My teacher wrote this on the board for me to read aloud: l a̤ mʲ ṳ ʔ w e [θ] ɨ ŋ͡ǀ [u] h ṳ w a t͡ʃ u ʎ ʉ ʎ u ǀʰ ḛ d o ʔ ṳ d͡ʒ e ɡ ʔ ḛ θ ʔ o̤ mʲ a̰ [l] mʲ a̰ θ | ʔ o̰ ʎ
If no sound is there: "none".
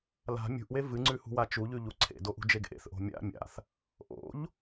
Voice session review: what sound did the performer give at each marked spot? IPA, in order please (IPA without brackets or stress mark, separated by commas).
v, ʉ, none